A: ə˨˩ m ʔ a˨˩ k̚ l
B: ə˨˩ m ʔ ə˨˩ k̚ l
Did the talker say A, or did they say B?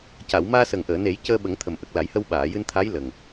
B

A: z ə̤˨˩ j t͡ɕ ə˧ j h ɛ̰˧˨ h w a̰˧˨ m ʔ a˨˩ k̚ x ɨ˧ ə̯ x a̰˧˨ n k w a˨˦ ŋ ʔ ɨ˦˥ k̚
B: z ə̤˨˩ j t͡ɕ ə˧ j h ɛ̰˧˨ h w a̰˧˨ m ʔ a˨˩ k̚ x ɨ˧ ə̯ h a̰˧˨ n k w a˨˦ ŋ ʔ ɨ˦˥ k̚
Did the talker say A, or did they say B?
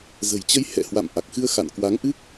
A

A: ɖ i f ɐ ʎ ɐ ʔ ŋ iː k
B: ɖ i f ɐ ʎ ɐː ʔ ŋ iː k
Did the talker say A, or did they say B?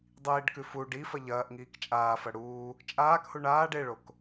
B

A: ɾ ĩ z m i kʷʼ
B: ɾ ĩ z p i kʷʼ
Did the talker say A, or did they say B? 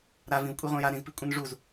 B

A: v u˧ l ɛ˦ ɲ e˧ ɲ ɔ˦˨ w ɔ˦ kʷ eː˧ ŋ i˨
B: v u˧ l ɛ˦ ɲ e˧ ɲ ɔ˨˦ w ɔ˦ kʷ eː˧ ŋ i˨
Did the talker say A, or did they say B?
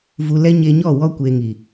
A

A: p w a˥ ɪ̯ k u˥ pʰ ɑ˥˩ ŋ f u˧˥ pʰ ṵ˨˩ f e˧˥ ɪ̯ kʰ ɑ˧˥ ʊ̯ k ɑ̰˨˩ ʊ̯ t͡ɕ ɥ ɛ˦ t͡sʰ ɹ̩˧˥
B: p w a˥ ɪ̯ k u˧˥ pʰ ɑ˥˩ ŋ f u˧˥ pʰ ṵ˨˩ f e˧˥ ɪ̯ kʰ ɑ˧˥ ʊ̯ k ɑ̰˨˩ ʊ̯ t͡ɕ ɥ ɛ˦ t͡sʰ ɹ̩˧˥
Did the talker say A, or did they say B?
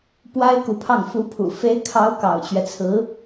B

